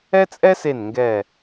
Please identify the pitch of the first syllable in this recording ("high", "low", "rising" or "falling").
high